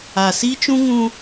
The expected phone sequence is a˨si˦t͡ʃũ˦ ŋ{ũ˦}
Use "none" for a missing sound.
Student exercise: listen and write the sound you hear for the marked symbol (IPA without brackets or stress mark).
ũ˦